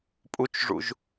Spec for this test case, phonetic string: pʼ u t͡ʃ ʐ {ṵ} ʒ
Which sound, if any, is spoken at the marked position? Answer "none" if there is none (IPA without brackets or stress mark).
ṵ